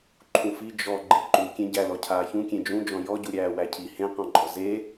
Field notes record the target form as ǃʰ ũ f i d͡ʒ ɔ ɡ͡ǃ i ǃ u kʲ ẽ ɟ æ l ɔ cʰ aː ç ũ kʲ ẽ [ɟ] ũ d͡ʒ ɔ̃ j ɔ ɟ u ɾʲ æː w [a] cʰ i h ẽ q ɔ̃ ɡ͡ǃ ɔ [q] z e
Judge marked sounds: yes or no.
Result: no, no, no

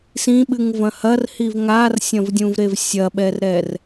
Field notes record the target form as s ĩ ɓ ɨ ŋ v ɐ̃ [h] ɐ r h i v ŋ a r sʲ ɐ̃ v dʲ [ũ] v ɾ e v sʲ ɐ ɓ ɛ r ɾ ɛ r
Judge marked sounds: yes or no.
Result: yes, yes

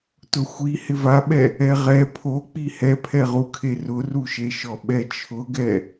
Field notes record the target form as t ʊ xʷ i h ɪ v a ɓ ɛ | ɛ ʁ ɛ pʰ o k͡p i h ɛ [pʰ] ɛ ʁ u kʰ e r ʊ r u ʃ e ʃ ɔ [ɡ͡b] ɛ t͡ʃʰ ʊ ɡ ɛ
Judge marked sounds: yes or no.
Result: yes, no

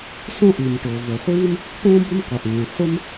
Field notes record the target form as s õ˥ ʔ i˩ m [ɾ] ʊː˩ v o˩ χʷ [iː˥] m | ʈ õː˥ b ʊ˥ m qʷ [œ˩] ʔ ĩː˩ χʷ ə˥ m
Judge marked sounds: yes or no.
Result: no, yes, no

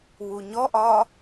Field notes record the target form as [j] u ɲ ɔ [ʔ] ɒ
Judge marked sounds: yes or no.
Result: no, yes

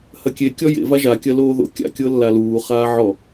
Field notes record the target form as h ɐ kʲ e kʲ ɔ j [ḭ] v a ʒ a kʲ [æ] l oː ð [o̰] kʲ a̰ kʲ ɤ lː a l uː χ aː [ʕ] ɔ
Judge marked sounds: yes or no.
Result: no, no, yes, yes

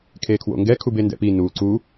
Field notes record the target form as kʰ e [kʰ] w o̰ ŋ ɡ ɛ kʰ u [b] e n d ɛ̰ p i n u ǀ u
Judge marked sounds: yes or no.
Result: yes, yes

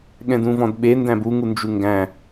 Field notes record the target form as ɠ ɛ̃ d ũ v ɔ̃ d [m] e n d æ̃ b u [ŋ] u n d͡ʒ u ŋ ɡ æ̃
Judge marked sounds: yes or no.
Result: no, yes

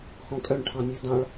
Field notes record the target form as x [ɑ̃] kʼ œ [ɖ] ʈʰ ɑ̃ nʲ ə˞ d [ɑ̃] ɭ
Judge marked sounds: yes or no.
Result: no, no, yes

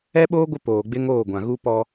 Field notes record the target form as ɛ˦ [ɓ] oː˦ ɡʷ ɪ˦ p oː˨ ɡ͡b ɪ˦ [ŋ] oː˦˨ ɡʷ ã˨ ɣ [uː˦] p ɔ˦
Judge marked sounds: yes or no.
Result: yes, yes, no

